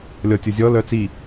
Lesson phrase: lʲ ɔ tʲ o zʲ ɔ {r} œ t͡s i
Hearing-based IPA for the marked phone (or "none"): l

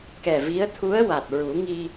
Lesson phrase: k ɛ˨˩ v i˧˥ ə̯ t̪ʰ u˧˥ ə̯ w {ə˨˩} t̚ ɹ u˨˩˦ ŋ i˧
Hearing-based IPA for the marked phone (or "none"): a˨˩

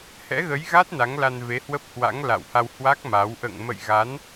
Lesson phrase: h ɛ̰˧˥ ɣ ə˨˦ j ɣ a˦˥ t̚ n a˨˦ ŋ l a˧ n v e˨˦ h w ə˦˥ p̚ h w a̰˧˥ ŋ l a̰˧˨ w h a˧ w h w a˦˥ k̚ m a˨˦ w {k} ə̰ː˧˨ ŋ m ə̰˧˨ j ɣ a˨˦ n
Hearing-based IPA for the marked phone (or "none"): ʔ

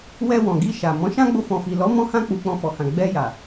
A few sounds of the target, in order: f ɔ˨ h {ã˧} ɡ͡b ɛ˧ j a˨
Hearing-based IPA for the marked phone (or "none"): ã˨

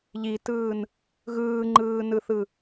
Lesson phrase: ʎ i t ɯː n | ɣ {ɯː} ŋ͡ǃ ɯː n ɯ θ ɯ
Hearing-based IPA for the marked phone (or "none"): ɯː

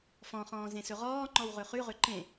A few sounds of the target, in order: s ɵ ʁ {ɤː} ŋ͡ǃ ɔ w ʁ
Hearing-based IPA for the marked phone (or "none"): ɔː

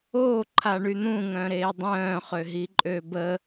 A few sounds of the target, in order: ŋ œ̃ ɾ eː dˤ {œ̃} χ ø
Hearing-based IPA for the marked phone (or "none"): œ̃ː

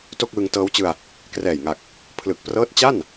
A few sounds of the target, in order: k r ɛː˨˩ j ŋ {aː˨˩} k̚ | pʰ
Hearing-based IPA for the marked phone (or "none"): a˨˩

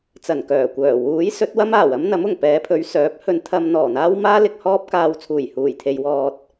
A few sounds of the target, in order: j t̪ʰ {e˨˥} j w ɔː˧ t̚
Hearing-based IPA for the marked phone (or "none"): e˨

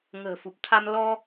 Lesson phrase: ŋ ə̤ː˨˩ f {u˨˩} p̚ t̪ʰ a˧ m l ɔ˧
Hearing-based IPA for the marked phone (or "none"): u˨˩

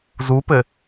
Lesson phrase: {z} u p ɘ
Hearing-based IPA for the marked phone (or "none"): z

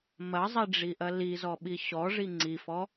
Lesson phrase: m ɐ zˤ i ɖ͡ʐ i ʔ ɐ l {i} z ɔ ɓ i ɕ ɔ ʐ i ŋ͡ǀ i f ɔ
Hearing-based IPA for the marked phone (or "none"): i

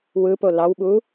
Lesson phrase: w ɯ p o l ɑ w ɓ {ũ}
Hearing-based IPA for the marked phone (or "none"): u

